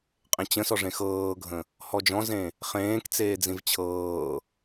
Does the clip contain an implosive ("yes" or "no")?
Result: no